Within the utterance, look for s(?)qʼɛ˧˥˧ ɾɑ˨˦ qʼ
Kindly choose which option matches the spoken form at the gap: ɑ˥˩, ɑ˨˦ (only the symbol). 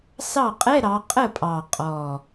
ɑ˥˩